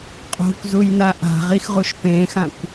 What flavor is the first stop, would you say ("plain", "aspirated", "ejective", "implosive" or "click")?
ejective